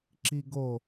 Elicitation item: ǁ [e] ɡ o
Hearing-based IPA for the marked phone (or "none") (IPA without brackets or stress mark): i